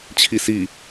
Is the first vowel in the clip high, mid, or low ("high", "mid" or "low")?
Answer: high